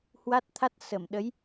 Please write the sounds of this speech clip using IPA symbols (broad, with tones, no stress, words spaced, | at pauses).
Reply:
hwa˦˥t̚ t̪ʰa˦˥t̚sə˧˩m ɗə˨˦j